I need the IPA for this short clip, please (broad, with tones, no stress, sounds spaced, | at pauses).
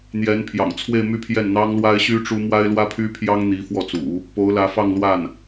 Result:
n̪ j ɛ˧˥ n pʰ j ɑ̰˨˩ ŋ t͡sʰ w e˥˧ ɪ̯ m y˥˧ pʰ j ɛ˥˩ n n̪ ɑ˥ ŋ l w a˥ ɪ̯ ɕ y˥ ʈ͡ʂ u˥ m w a˥ ɪ̯ l w ä˥ pʰ y˥ pʰ j ɑ˥ ŋ n̪ i˧˥ f w ɔ˥˩ t͡s ṵ˨˩˦ | p o˧˥ ʊ̯ l ä˧˥ f ɑ˥˧ ŋ l w a˥˩ n